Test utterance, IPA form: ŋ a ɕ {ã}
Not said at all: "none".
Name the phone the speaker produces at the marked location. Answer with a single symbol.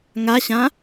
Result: ã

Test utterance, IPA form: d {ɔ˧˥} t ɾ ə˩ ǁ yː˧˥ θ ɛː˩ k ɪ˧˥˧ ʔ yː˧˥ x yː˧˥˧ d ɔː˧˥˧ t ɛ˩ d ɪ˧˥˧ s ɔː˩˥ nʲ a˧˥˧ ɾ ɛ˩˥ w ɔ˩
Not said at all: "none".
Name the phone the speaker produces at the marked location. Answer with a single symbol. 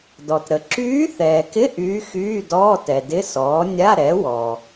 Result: ɔ˩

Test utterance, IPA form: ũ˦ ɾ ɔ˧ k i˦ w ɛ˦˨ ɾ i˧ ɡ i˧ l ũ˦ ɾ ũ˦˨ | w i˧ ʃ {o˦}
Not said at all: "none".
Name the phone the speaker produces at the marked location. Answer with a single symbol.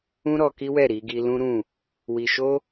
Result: o˦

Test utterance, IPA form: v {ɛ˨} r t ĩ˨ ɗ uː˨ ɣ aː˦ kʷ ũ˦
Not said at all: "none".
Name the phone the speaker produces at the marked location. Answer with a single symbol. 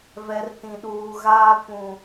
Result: ɛ˨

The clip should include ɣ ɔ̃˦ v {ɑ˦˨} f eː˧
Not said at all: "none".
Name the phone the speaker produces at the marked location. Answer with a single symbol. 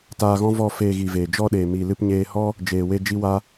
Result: ɔ˦˨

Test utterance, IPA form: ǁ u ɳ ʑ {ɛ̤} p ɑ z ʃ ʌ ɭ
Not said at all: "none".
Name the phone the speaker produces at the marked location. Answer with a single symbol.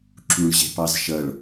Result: ɛ̤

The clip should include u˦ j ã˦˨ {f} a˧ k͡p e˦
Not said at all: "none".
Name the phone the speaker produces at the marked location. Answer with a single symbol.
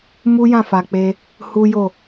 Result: f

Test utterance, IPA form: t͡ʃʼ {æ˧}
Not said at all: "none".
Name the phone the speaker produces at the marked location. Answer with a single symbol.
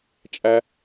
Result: æ˧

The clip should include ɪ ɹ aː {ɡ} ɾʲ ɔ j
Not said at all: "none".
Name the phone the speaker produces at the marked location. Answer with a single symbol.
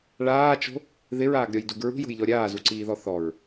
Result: ɡ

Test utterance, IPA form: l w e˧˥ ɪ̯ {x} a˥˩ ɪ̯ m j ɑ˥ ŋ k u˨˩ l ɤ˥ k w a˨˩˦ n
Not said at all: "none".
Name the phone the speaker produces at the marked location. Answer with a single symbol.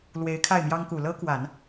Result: kʰ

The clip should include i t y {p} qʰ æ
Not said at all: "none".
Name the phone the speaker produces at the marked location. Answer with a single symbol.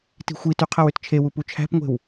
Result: none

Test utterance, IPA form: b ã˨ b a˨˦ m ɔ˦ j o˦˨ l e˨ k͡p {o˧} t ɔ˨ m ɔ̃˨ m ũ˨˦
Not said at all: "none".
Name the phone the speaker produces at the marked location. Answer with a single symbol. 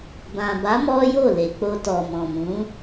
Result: o˧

